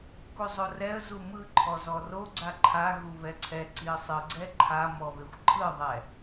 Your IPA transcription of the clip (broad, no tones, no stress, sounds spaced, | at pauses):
k u zˤ o r ɛ ə̯ z u m ɯ ǃʰ ɔ z ɔ r o ɡ͡ǀ a ǃʰ a ɣ u β ɛ ǀʰ ɛ ǀ i ə̯ sˤ ɯ ɡ͡ǀ ɛ ǃʰ a m ɔ β e xʷ ǃʰ ɯ ðˤ ɛ